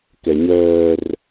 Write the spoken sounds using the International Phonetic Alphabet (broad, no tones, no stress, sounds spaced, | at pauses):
k ɛ ɲ œː r